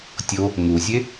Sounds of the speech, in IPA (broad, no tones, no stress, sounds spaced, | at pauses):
tʲ o | ŋ u zʲ e